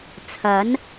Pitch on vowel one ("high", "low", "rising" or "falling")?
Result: rising